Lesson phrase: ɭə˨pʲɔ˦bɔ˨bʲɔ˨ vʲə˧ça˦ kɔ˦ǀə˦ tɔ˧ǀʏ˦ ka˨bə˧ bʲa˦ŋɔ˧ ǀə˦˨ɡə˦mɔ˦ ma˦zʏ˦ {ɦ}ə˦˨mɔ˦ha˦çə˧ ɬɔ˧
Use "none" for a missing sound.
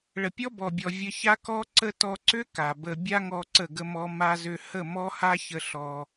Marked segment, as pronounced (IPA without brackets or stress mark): h